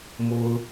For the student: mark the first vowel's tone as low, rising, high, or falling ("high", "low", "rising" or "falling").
low